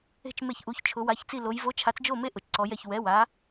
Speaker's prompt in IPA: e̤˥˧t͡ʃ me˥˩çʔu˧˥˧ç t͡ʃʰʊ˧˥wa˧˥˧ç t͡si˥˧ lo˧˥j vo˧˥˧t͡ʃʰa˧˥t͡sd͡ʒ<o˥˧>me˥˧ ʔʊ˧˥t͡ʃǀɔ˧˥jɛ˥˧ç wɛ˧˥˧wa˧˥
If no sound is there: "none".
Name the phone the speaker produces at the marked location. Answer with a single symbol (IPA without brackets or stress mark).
o˥˧